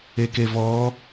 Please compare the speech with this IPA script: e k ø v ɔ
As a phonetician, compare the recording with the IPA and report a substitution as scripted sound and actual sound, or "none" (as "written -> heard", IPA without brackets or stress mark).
ø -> e